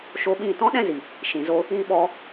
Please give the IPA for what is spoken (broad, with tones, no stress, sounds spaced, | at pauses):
ʃ o˧ ɓ ĩ˦˨ t ɔ̃˦ ɗ ɛ̃˦ z i˨ | ʃ ĩ˨ z o˧ | ĩ˧ ɓ ɔ˧